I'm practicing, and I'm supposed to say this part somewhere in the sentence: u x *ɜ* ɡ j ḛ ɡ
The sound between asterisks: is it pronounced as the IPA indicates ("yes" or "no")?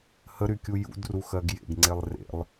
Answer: yes